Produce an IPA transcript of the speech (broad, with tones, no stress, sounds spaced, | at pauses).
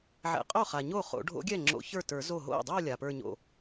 ʕ ɛ̰˨˩˦ qʼ o˥˩ χ a˩ ɲ o˥˩ χ o̰˨˩˦ ɖʱ o̰˧˥ ɡʲ ɛ˥˩ ŋ͡ǁ o̰˧˥ ç ə˞˥˩ t ə˞˨˩˦ z o˥˩ ɦ o̰˥˩ dˤ o˥˧ lʲ a˩ p ə˞˥˧ ɲ o̰˥˩